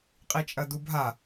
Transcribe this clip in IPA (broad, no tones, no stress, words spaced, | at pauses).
qʼit͡ʃʼɐdubʱa